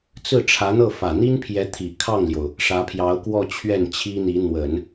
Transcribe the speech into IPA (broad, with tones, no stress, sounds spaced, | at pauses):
t͡s ɹ̩˥˩ ʈ͡ʂʰ ä˧˥ n̪ ɤ˥˩ f ä˨˩ n̪ i˥ n pʰ j ɛ˧˥ t̪ʰ i˨˩ kʰ ɑ˥˩ ŋ l j o˩ ʊ̯ | ʂ ä˧˥ pʰ j ɑ˧˥ ʊ̯ k w ɔ˥˧ t͡ɕʰ ɥ ɛ˥˩ n t͡ɕʰ i˥ n̪ i˧˥ n̪ w ə˨˩˦ n